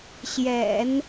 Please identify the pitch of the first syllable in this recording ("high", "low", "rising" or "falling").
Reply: low